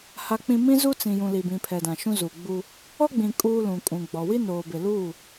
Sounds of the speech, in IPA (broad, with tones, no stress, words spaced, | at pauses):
ha˨k͡pĩ˨ mĩ˦zu˦t͡sĩ˨jũ˨ li˨bĩ˨pʰɛ˨dã˨ ʃũ˦zu˨ɡ͡bu˦ | ɔ˦ɡ͡bĩ˨ kʼuː˦lũ˨ kʼũ˨ɡ͡bɔ˨ wi˦noː˨bɪ˨luː˦˨